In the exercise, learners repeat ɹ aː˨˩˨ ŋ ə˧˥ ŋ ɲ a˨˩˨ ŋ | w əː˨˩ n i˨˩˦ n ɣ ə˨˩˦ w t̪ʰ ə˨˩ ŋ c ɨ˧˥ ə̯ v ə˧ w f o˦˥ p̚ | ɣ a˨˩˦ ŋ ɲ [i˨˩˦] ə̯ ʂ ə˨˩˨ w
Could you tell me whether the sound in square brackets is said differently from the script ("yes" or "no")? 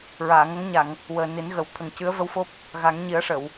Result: no